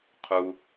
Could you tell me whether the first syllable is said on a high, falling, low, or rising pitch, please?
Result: low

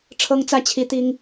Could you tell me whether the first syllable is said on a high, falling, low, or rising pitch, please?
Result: high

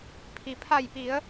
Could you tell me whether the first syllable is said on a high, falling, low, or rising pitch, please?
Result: low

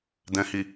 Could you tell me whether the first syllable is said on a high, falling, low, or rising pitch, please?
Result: low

